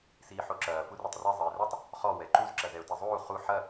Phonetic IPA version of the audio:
s iː ħ o ǁ ɐː f u r e tˤ r i zˤ ɘː r u tˤ | χ ɔ w ɛ ǃ u z ǁ ɐ z ɛ ʊ̯ t i zˤ uː χ u ħ ɐ

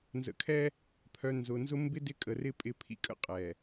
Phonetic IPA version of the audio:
n z ə̰˨ kʰ ɛ˦ | pʰ œ˨ n z ʊ˨ n z ʊ˦ m b ɪ˦ d ɪ˦ kʼ ə˨ r ɪ˦ pʼ ɪ˦ pʰ ḭ˦ kʼ ə̰˦ qʼ ɛ˨

